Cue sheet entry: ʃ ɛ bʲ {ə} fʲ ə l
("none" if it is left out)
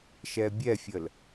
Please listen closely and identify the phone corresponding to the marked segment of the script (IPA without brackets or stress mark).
ɛ